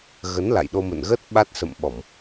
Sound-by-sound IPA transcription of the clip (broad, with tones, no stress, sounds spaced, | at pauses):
ɣ ə˨˦ n l a̰˧˨ j ɗ o˧ m ə̰˧˨ n ɣ ə˦˥ t̚ ɓ a˦˥ t̚ s ə̰˧˨ m ɓ ɔ˧˩˨ m